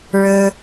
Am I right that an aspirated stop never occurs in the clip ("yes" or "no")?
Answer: yes